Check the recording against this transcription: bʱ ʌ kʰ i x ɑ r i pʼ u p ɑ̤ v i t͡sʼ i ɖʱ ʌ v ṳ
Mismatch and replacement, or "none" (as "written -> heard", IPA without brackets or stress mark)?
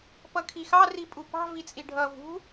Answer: bʱ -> p